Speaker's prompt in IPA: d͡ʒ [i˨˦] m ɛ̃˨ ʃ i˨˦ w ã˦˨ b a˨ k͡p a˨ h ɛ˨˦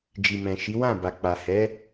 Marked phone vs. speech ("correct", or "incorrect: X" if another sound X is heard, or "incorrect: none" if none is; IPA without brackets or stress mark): incorrect: i˨